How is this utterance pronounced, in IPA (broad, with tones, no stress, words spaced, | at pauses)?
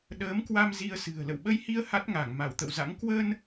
ɗəː˨˦mkwa˧m zi˧ə̯sɨ̤˨˩ə̯ lə̰˧˨wɓə˧jhi˧ə̯ ha˦˥t̚ŋa˧˩ŋ ma˧˩wt̪ə̰˧˨wza̰˧˥ŋ kwə˧n